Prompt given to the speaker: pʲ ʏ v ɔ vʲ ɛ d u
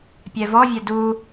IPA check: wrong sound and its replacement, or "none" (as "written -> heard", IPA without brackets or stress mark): ʏ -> ɛ